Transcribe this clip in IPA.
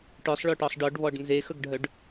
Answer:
ʈ œ sˤ ɭ œ ʈ ɔ sˤ ɖ ɔ ɖ β ɔ ɖ n z e x ə ɡ ɖʱ œ ɖ

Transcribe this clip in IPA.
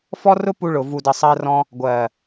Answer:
f ɔ˦ r ʊ˦ p u˧ ɭ ʊ˨ v u˨ d ə˨ sˤ ɜ˧ r ɔ̃˧ | ɡʷ ɜ˨

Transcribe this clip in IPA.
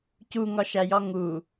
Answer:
c u ŋ ɒ ʃ æ j ɒ ŋ u

